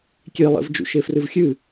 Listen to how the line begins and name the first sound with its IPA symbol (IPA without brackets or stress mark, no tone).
kʲ